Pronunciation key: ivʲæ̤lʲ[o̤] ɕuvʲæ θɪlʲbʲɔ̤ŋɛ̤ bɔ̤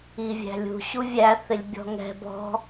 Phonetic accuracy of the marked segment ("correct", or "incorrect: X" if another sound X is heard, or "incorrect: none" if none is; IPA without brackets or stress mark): incorrect: ṳ